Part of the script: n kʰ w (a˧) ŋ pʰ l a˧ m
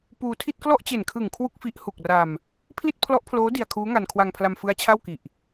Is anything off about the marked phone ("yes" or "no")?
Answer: no